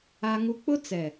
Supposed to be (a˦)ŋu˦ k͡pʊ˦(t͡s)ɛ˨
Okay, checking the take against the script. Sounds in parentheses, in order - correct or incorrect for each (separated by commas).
correct, correct